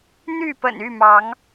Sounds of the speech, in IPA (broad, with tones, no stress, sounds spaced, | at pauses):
n̪ y˥˨ p ə̰˨˩ n y˥˨ m ɑ˨˦ ŋ